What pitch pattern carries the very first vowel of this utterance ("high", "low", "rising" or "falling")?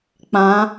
rising